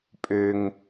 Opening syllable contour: low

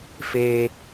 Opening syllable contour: high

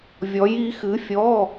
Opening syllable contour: rising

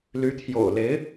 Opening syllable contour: rising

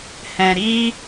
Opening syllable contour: low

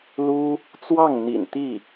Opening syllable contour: high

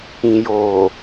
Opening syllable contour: low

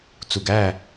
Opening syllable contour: low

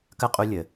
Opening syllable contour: high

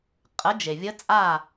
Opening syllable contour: rising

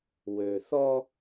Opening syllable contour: low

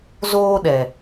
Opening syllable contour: high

